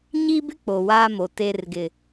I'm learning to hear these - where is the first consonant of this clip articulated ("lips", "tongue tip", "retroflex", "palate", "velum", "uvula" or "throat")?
palate